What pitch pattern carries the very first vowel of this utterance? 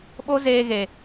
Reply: high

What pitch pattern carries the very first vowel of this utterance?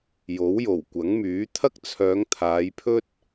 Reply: rising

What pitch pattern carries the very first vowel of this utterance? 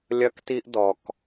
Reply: high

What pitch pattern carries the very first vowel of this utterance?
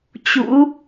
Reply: rising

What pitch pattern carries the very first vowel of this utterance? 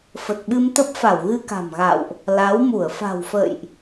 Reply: low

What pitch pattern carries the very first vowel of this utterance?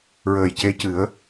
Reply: low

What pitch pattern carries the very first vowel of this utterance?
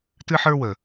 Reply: high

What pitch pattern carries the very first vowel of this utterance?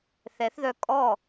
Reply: rising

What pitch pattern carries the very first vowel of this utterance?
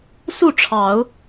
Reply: falling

